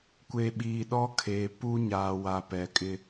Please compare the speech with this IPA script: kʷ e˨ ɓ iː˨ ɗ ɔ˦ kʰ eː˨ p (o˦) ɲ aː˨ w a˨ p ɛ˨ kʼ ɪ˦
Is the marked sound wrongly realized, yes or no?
yes